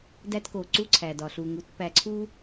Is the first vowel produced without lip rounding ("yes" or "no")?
yes